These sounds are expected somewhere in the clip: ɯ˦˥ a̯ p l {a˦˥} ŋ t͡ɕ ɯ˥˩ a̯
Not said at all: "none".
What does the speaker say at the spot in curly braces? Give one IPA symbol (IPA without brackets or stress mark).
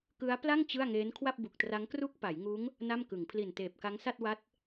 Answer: a˥˩